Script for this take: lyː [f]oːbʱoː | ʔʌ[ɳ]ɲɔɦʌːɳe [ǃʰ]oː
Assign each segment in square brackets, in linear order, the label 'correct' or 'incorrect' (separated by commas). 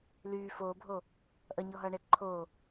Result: correct, incorrect, correct